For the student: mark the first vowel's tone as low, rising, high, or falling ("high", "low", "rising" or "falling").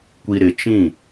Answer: low